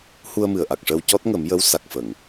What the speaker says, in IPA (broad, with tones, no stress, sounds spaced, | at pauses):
h u˧ ə̯ m ɨ˨˩ ə̯ ʔ a˨˩ k̚ ʂ əː˧ w c ɔ˦˥ t̚ ŋ ə˨˩˦ m j ə˧˥ w s a˨˩ k̚ f ə˨˩˨ ŋ